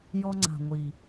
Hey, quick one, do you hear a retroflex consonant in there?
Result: no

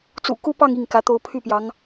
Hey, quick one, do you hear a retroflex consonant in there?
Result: no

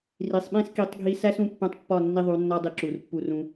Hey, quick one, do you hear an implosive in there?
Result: yes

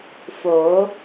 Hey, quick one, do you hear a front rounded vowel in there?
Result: no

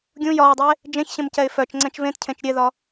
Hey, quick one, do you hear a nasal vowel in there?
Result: yes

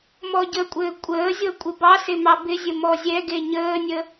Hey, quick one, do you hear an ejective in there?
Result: yes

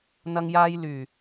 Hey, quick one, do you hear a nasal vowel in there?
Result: no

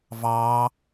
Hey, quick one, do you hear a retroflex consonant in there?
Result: no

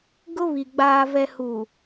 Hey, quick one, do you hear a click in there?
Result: no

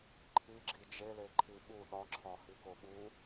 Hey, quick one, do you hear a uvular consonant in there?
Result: no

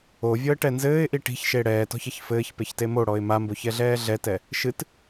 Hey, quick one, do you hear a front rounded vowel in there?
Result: no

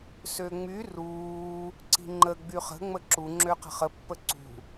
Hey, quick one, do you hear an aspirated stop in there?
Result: no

